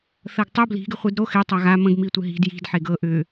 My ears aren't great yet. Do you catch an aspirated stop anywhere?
no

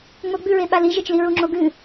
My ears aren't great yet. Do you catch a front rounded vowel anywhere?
no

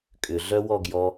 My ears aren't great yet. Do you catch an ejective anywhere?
yes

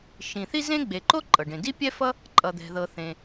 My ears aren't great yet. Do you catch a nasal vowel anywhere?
yes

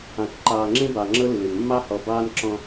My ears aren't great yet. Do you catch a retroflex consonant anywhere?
no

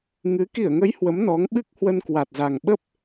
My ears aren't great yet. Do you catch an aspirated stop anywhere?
no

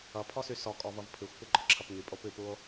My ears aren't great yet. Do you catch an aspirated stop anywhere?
yes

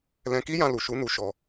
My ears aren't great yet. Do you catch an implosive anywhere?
no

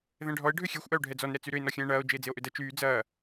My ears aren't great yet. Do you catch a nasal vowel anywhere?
yes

